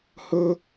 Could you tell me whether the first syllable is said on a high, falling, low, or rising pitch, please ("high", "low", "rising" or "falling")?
high